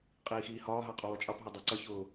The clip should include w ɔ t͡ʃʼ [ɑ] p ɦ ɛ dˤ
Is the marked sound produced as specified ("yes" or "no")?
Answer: yes